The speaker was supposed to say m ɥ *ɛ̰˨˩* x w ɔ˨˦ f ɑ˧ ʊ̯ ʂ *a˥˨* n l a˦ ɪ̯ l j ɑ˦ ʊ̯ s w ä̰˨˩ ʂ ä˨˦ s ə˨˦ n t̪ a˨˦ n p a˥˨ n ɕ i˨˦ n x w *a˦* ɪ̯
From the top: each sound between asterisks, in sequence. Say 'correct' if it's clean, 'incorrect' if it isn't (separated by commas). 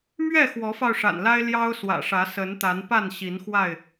incorrect, incorrect, incorrect